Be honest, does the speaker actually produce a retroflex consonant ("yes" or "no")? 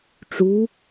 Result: yes